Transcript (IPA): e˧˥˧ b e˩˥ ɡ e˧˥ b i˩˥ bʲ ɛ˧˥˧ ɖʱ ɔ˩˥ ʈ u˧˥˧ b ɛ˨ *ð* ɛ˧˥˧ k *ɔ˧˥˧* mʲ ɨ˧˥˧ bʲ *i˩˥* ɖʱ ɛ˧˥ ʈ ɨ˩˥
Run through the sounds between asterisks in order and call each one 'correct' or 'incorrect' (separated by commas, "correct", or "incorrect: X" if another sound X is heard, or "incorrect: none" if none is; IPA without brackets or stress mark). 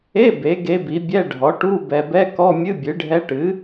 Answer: incorrect: b, correct, incorrect: ɨ˩˥